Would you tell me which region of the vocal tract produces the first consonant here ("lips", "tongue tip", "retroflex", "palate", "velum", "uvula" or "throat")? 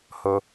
throat